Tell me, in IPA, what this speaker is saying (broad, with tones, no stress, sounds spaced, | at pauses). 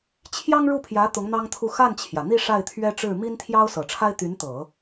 t͡ɕʰ j ɑ˥ ŋ ɻ u˥˩ pʰ j ä˧˥ t̪ ʊ˧˥ ŋ n̪ ɑ˥ ŋ t̪ʰ u˥˧ x a˥˩ n t͡ɕʰ j ä˩ n̪ i˥˧ ʂ a˥˩ ɪ̯ t̪ʰ ɥ ɛ˥ ʈ͡ʂ ɻ̩˥˩ m i˥ n t̪ʰ j ɑ˥ ʊ̯ s ɤ˨˩ ʈ͡ʂʰ a˥ ɪ̯ t̪ y˧˥ n t̪ ɤ˨˩˦